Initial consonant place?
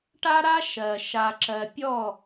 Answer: retroflex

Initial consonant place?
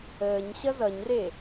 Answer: palatal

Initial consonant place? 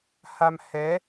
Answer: glottal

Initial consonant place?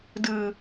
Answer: alveolar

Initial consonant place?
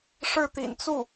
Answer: retroflex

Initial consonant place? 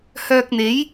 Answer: glottal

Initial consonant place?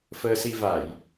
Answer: labial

